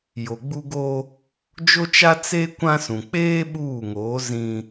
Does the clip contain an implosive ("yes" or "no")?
yes